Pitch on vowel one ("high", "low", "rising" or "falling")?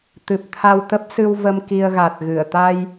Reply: low